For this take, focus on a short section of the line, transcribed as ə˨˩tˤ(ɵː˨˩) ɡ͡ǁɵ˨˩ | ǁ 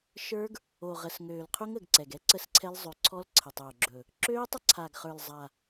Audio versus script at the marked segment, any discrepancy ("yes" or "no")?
no